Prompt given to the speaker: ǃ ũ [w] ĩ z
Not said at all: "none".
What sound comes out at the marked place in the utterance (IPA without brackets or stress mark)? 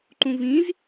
v